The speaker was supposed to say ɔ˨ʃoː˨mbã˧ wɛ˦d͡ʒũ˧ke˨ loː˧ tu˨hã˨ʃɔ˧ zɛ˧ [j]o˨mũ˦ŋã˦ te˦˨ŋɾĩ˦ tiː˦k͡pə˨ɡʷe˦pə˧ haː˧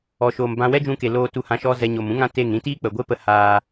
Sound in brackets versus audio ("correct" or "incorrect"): incorrect